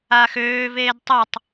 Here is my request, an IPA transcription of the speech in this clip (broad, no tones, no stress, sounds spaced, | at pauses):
aː x øː v eː d tˤ o tˤ